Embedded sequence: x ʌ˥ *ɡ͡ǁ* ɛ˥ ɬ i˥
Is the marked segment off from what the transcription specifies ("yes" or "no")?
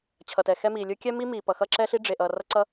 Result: yes